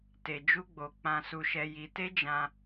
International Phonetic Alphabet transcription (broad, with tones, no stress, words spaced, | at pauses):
te˧d͡ʒu˦ɡ͡bo˧ k͡pã˧su˧ʃɛ˧ ji˧ te˦d͡ʒã˧